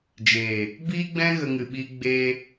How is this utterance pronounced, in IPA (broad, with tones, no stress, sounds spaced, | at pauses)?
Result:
d͡ʒ eː˨ | b iː˦ ɡ͡b ɛ̃˦ ɣ ə˦ ŋ ɨ˧ ɓ iː˦ ɡ͡b eː˧